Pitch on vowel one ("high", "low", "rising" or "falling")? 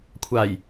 low